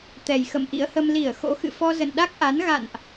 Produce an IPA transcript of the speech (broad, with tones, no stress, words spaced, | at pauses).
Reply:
t̪ɛ˨˩jxə̰˧˨mʔḭ˧˥ə̯hə˧m li˧˩ə̯ xo̰˧˥xɨ̰˧˨fɔ˧ zə̰˧˨nɗa˦˥k̚ʔa˨˦n ɣa̰˧˨nʔ